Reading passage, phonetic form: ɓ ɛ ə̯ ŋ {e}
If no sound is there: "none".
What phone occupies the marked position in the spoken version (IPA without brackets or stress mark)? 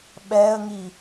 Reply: i